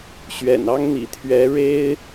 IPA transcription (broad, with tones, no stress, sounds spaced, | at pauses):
ɕ ɥ ɛ̰˨˩ n ɑ˦ ŋ n̪ ḭ˨˩ t̪ʰ ɥ ɛ˨˦ ɻ e˦ ɪ̯